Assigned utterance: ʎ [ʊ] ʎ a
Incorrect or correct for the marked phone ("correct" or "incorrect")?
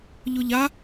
correct